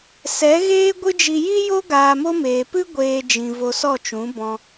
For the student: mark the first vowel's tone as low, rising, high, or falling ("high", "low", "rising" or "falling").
rising